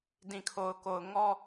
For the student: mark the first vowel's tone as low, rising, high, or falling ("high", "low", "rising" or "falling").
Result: low